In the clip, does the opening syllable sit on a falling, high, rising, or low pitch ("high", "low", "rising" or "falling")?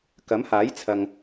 rising